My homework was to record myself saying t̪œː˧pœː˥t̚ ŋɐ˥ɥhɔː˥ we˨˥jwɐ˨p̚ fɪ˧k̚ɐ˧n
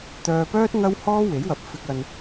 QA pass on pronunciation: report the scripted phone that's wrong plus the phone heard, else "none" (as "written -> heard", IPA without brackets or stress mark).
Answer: ɥ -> w